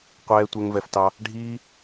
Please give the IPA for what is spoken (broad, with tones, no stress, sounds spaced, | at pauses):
qʷ ɛː˧ tʷ ɛ˦ ŋ v ɛ˧ f t ɑ˦ | ɖʱ iː˦